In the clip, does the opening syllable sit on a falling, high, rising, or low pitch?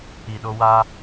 low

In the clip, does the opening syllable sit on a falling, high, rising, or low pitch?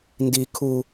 high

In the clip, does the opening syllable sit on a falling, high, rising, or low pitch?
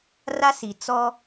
high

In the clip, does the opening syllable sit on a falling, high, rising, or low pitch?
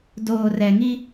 low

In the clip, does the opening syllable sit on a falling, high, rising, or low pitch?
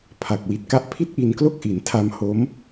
low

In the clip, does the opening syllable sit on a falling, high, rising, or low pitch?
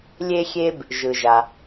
high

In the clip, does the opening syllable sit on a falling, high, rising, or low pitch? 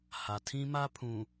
low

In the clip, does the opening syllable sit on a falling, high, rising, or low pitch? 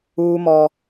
high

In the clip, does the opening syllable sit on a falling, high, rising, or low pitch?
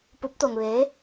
rising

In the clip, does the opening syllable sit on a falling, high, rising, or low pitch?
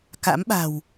rising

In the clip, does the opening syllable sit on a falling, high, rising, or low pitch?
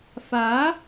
rising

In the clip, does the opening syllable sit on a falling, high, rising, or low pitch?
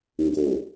low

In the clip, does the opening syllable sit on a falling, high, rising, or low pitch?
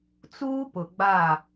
high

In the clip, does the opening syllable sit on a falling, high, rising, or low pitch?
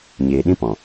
low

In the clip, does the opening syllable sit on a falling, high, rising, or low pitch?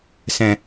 low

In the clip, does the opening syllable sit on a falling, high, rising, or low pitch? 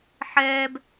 high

